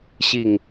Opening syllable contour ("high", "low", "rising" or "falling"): low